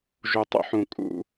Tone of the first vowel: low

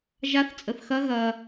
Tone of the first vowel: rising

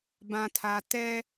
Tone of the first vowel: low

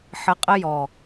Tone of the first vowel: rising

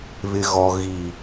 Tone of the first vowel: low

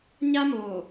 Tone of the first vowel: high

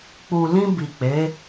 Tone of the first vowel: low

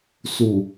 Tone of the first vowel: low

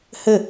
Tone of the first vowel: falling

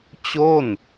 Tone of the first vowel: falling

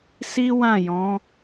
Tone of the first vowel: high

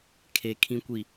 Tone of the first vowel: low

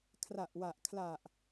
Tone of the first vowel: low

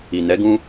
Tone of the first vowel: low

